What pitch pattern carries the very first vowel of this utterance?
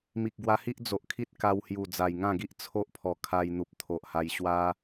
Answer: low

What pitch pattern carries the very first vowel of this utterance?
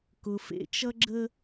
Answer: low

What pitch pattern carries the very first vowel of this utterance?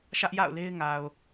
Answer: high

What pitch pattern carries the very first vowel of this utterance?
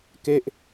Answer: falling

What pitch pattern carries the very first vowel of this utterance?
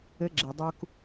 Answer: rising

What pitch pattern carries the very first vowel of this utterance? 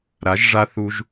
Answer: rising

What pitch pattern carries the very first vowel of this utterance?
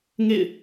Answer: falling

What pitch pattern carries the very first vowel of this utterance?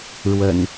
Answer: low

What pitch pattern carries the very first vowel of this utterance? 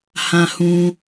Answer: low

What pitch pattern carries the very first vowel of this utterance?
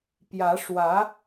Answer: rising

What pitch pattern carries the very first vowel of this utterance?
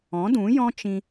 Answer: rising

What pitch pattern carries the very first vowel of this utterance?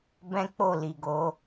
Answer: high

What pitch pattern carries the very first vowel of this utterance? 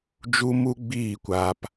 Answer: high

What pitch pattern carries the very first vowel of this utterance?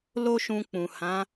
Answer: high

